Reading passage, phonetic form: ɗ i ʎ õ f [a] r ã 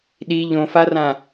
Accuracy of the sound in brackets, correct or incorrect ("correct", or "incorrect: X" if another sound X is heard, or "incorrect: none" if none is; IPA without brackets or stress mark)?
correct